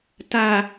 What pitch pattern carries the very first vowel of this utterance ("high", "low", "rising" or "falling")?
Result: low